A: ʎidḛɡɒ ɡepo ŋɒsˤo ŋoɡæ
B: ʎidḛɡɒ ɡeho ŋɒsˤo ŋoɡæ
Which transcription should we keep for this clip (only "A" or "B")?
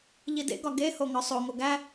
B